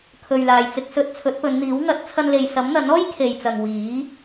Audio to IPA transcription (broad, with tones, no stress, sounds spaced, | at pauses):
kʰ ɵ˨ ɥ l aː˨ j t͡s ɪ˧ k̚ s ɵ˧ t̚ t͡sʰ ɵ˨˥ t̚ p ɵ˨˧ n n̪ iː˨˥ w ŋ ɐ˨˥ t̚ t͡sʰ ɐ˧ n l e˨ j s ɐ˨˥ m n̪ ɐ˨˥ n ɔː˥ j kʰ e˨ j t͡s ɐ˨ ŋ w iː˨˥